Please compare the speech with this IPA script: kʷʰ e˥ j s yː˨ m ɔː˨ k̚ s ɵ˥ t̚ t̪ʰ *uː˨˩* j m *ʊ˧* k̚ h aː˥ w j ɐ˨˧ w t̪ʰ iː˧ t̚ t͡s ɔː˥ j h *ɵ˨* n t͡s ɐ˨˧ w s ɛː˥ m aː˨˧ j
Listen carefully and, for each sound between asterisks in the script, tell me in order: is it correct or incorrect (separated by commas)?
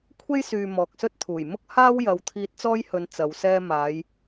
correct, incorrect, incorrect